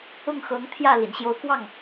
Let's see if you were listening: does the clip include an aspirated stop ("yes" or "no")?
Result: yes